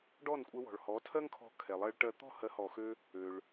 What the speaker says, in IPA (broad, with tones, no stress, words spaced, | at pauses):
ɖɔ˥˩nkʷʼɛ˧wɔ̤˩ɭhɔ˩˥ tʰɜ˥ŋkʰɔ̤˧ kʰɛ˩lˠɜ˧ɭʈɜ˧ t̪ɔ̤˥˩hɜ˩˥hɔ˩xø˧ | ø˩ɭ